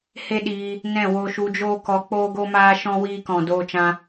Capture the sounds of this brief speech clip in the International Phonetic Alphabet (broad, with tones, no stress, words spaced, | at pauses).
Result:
he˦ɗiː˧ | nɛ̃˦˨ wo˧ʃu˧d͡ʒoː˦kɔ˧ k͡poː˦ɡo˦maː˦ʃɔ̃˦ wiː˧kɔ̃˨doː˧t͡ʃã˧